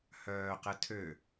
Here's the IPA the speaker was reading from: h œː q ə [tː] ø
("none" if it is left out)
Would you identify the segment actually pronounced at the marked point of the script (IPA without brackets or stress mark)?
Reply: tʰ